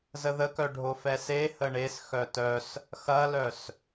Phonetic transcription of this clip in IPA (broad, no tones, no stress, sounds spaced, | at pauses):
z ə ð ə k œ ɖʱ o f ɛ s e h ə ɳ e s x œ t œ s | x ɐ l œ s